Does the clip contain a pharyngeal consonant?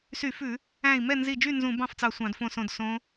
no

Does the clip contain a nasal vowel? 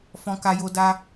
yes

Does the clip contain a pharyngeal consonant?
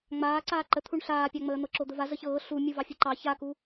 no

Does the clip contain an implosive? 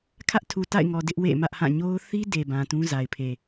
no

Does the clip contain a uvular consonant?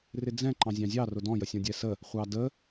yes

